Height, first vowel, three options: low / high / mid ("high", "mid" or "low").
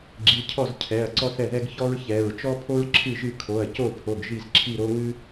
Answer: high